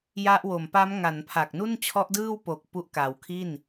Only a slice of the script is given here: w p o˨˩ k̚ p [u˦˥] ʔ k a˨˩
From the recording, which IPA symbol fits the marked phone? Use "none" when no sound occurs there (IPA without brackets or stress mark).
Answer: u˦˥